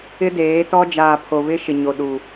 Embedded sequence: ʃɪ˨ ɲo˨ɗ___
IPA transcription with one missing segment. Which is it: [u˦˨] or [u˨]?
u˨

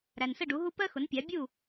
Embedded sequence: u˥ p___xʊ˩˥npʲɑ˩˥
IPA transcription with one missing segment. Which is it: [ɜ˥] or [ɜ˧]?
ɜ˥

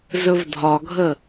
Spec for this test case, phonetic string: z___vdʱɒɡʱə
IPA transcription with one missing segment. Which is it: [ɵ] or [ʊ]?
ɵ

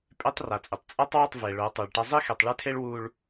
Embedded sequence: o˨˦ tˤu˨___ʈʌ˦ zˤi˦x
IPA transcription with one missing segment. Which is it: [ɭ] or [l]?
ɭ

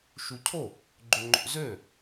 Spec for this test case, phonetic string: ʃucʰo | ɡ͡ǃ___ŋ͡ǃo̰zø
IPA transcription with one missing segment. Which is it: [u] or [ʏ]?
ʏ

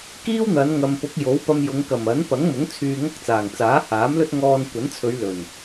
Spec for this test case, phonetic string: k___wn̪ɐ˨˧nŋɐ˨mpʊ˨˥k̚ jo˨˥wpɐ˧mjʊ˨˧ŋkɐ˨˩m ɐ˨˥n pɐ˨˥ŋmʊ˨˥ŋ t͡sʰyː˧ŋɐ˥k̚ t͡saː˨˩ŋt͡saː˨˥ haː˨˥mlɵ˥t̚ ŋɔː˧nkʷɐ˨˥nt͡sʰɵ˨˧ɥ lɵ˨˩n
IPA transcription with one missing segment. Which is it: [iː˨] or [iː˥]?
iː˥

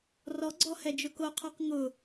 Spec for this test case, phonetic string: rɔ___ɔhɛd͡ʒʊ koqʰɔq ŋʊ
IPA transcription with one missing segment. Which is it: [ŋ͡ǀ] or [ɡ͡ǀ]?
ɡ͡ǀ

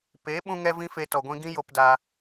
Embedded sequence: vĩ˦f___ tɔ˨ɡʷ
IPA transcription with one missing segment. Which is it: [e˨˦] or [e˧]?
e˧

